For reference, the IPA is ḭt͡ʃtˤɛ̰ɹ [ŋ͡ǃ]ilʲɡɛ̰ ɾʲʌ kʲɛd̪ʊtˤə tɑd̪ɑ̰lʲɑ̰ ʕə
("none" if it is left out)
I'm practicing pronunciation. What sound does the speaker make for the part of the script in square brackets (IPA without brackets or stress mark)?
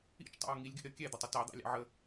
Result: ŋ